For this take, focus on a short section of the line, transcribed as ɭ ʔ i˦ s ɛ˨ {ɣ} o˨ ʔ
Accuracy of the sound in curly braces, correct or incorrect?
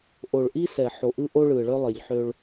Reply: incorrect